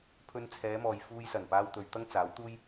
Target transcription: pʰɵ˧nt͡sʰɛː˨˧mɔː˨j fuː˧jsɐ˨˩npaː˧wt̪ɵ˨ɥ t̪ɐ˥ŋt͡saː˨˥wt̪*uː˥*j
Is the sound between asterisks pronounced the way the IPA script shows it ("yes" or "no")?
yes